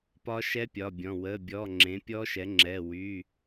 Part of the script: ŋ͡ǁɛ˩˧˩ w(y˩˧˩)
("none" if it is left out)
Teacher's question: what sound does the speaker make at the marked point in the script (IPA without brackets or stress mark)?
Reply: y˩˧˩